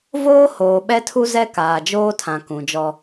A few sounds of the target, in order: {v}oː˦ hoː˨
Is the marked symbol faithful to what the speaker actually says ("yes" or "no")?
yes